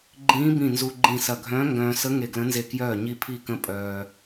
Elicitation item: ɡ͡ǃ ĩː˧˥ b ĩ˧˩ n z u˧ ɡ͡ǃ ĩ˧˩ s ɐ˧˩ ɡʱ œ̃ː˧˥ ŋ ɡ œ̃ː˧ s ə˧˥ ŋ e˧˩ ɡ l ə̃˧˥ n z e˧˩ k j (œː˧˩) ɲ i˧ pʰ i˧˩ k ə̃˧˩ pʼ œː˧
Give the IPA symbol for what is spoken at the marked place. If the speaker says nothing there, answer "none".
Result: œː˧˩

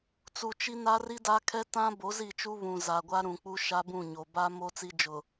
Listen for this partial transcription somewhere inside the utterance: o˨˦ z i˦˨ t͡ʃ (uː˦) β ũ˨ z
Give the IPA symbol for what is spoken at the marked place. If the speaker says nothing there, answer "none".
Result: u˦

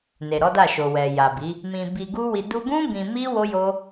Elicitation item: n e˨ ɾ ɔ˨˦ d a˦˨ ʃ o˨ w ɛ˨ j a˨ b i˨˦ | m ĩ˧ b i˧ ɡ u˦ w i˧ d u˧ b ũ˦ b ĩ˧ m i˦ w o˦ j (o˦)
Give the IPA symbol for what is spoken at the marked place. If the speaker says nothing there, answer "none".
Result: o˦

